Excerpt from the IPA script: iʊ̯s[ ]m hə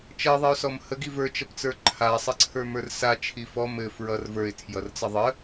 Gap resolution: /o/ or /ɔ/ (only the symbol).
ɔ